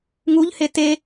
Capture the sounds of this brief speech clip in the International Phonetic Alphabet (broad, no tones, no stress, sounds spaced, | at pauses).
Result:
ŋ u ʎ h e t e